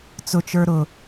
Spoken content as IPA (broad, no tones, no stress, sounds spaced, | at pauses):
t͡s ʊ t͡ʃ ə˞ ɾ ʊ